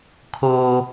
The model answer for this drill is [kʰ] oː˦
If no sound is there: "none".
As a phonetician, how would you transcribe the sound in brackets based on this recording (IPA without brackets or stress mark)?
kʰ